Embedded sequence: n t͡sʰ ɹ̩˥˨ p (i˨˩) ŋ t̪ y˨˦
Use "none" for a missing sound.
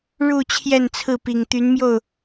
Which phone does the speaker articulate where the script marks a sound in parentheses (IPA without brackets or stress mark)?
i˨˩